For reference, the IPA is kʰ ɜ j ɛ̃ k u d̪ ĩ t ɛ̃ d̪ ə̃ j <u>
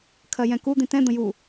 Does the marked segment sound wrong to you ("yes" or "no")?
no